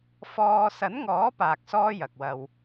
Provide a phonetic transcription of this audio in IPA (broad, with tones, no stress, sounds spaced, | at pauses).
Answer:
f ɔː˧ s ɐ˨˥ n ŋ ɔː˨˥ p aː˨ k̚ s ɔː˥ j ɐ˨ k̚ w ɐ˧ w